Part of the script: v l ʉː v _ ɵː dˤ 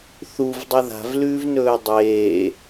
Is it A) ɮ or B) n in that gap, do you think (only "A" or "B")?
B